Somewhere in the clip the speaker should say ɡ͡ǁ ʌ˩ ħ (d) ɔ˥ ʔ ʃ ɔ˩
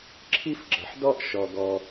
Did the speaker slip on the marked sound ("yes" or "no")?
no